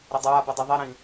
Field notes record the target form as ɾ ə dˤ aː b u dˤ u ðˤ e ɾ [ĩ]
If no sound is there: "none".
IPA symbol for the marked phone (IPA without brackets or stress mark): ĩ